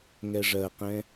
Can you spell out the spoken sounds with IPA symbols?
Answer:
ŋ ɛ ʐ ɜ q ɛ̃

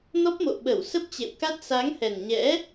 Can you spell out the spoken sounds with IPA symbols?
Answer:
n ɔ˦˥ p̚ m o̰˧˨ ɓ ə˧˩ w s ə˦˥ p̚ t͡ɕ ḛ˧˨ w k a˦˥ t̚ s a˨˦ ŋ h ɛ˨˩ n ɲ ɛ̰˧˥

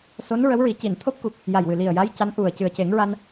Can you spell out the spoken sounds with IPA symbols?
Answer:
s o˧˥ n ɹ ə˧˥ w ɹ i˨˩˦ c i˨˩˨ n t̪ʰ o˦˥ p̚ k u˨˩ k̚ | j a˨˩ j w ɨ˨˩ l i˨˩ ə̯ j a˧˥ j c a˧˥ n ʔ u˨˩ ə̯ c ɨ˨˩ ə̯ c e˨˩˦ ŋ ɹ a˧ n

